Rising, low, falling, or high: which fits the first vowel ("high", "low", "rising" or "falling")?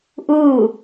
falling